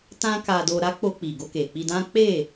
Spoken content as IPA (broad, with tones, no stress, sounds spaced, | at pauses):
t ã˦ k a˧ d o˧ ɾ a˦ k͡p o˧ k͡p i˨ ɡ o˧ k e˨ k͡p i˧ d ã˦ k͡p e˦˨